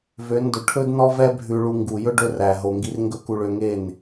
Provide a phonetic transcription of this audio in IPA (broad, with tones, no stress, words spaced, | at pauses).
vø˨˦ndɵ˨ ʈʰɵ˦dnɔ˦ vɛ˦ bʱʉ˧ɭu˧ ŋɡu˨jɵ˦ ɖɵ˦ ræ˨ ɦo˨ŋɡi˧r ŋɡɵ˦ku˧ɭø˧ŋe˦˨n